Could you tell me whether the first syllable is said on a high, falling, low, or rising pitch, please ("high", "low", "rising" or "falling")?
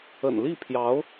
low